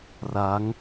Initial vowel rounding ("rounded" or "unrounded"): unrounded